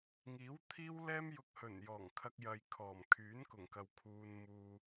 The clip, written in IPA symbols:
ŋ iː˨˥ w t̪ʰ iː˥ w l ɛː˥ m j ʊ˧ k̚ h ɵ˨˩ n j ɔː˨˩ ŋ kʰ ɐ˧ k̚ j ɐ˨ j kʰ ɔː˨˩ m kʰ yː˨˥ n k ʊ˨˩ ŋ k ɐ˨ w kʰ uː˧ n m uː˧

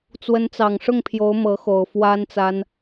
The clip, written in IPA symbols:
t͡s w ə˧˥ n t͡s ɑ˨˩ ŋ ʂ ʊ˥˩ ŋ pʰ j o˧˥ ʊ̯ m ɤ˧˥ x o˨˩ ʊ̯ f w a˥ n t͡s a˥ n

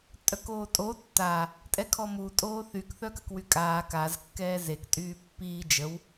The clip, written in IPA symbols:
tʼ œ k oː tʼ o tː a | tʼ ɛ kʰ ɔ m u tʼ oː θ y k θ œ k ə k w y kʼ aː k a z kː ɛː z e k tʼ yː pː iː d͡ʒ ə w

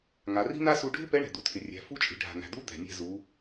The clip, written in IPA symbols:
ŋ a˩˧ r i̤˥ n a˥ s u˧ ɖʱ ɪ˥ p ɛ˧˥ ɳ ɛ̤˩ d̪ u˩ tʰ ɪ˩ rʲ æ̤˩˧ f u˧˥ t͡ʃʼ i̤˩˧ ɖʱ a̤˩ n̪ æ̤˩ d̪ u˧˥ d̪ ɛ̤˩ nʲ ɛ̤˧ z u˩˧

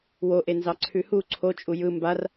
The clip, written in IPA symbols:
w o ʔ e n z ɑ ǀʰ ʉ h u ǀʰ o t͡ʃʼ u j ɯ m b a r

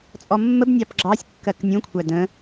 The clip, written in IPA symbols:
t͡sʼ ɔ mː ə b nʲ ɑ p ɡ͡ǁ ɑ sʲ kː ɜ k nʲ ũ kʷʰ æ d ə̃

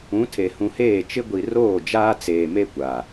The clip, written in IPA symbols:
ũ˨˦ tʰ e˨ h ũ˨ h eː˦˨ t͡ʃ ɪ˦ ɡʷ i˨ r oː˦˨ d͡ʒ aː˦ t͡s eː˨ m e˦ kʷ a˨

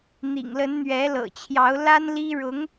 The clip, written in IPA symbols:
n̪ ḭ˨˩ ŋ l ə˧˥ n n̪ ɥ ɛ˧˥ l ɤ̰˨˩ t͡ɕʰ j ɑ˧˥ ʊ̯ l a˥ n l i˥ ɻ ʊ˧˥ ŋ

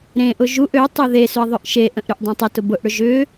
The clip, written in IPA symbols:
ɾ ẽ ʔ ʊ ʒ u ʔ ø tˤ y ð e s ʏ ɐ̯ ðˤ ʏ ʔ ʃ e ʔ ə̃ ʔ ɾ y ʔ dˤ ɐ̃ tˤ ʏ t ʊ b ʊ ʔ ɽ ʏ ʒ ʏ

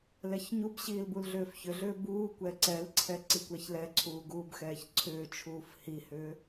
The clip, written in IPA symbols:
l ɛ ç ɲ u b ɕ iː l b u l ɮ ʏː f ç ʏ ɮ ʏː b uː kʷ ɛ ǀ ɛ l ǀʰ ɛ ǀ i kʷ ɛ ç l ɛ ǀʰ uː ɡ uː b x ɛː ç ǀʰ ʏː t͡ʃʰ uː f h i h ʏː

